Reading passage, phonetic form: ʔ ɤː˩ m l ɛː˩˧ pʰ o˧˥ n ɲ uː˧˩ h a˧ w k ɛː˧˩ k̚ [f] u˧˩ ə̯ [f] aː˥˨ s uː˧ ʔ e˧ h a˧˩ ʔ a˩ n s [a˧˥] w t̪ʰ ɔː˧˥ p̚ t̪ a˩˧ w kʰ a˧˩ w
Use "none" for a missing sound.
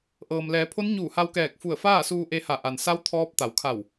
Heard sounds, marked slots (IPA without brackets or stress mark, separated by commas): f, f, a˧˥